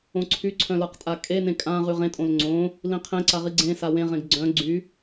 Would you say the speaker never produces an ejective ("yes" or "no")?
no